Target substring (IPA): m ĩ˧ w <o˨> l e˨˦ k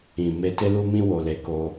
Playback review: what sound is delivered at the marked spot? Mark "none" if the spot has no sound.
o˨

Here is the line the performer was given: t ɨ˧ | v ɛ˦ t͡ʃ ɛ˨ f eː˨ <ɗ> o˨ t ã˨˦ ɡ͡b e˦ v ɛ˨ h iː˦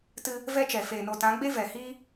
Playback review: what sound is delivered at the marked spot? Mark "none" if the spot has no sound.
n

